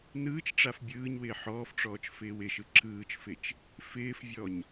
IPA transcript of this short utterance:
nɯːt͡ʃʈ͡ʂaf bʲɯːɲwɪː ħɔːfʈ͡ʂɔːt͡ʃfɪːw ɪʃɯ ǁɯːt͡ʃfɪt͡ʃ | fɪːfvʲɔɲ

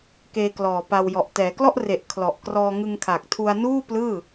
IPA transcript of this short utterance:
keː˧klɔː˨˩ pa˧wjɔ˨˩ʔ tɛː˩˦klɔ˥˩ʔre˨˩ʔ kʰlɔ˨˩ʔkrɔː˧ŋɯ˧ŋ kʰa˨˩k̚tʰu˧a̯ nuː˥˩plɯː˥˩

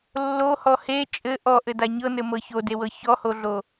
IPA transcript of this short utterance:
lːohɔ he t͡ʃʼɘ ʔɔʔɘda ɲɤnɘmɤ çodewɤ çɔhoɮo

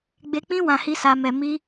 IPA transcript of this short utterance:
ɡ͡be˧k͡pĩ˦ wã˧hi˦sa˧mɛ˧ mi˧

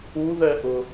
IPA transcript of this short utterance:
uðɛʔʊ

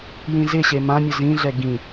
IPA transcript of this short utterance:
jĩzɪɕe mãmʲʊ zĩɮɛ ɡĩ

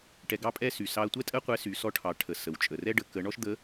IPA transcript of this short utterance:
ʈɛ˧ɡɑ˥pʼɛ˥ sy˩sɑ˧ɐ̯tʷɛ˥tʼə˥ qʷɛ˧˥sy˩˧ sɔ˧˥ʈʰɑ˩˧ʈʰə˩ sə˩wt͡ʃʼə˩rɛ˥ ɖə˩˧kə˩˧ɳɔ˥ʃ d̪ə˧˥

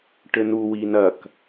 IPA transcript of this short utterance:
ʈɘnu winɐk

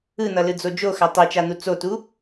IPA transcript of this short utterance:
ɯn̪ʌlɯd͡zo d͡ʒoxa tˤit͡ʃan̪u t͡sotu

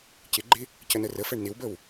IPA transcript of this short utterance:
cɪɡ͡ǃɪ | cənərəfɛɳ nɪwbəw

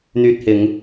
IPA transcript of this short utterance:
n̪yː˧t̚hɪ˨˧ŋ

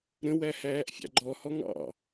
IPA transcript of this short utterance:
ɾə̃wæ hæːʔfʲɑ̰ɡ͡ǃɔhɔ ŋɑ̰

